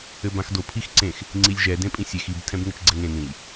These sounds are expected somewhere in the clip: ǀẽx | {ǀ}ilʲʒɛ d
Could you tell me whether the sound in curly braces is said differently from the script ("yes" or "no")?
yes